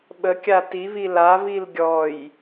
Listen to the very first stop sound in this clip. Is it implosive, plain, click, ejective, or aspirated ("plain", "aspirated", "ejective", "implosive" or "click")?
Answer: implosive